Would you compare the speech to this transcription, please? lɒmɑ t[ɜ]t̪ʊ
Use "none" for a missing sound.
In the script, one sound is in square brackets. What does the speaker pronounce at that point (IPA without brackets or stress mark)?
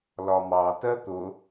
ɜ